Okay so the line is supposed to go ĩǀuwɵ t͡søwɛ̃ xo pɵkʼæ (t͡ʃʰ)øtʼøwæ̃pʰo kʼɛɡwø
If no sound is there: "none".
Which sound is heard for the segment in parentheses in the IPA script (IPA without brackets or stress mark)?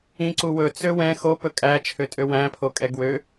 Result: t͡ʃʰ